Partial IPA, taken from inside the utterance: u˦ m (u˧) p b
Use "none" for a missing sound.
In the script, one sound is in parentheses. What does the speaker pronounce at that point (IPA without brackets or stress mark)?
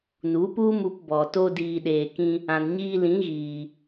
u˧